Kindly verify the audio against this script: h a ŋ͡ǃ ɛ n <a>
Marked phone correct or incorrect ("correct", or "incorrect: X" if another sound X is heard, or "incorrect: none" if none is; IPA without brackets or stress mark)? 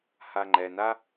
correct